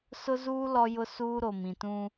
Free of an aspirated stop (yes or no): yes